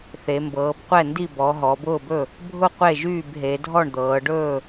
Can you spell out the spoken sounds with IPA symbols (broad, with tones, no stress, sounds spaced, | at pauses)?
θ e˩˧ m b ɤː˩˧ b qʷ ɛ˥˩ n d i˥˩ b ɔ˩˧ ɦ ɔ˩˧ b ʊː˥˩ b ɵ˥˩ | bʱ ʊ˥˩ qʷ e˥˩ ʒ yː˥˩ b ɦ e˩˧ dʱ ɔ˥˩ ɳ d̪ ɤː˩˧ ɖ ɵː˥˩